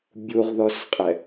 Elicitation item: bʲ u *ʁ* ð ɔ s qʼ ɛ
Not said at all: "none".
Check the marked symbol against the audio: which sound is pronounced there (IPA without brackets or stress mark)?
ʁ